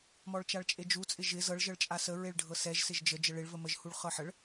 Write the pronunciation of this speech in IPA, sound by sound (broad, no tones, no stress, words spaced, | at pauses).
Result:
mɔɭt͡ʃaɭt͡ʃʼed͡ʒu t͡sʼɪʒɪ zɤɭ ʒɤɭt͡ʃʼasə ɹeɭɖʱɤsɛʒ sɪʒd͡ʒə d͡ʒəɭɪɭ vəməʒ huɭχɤħəɭ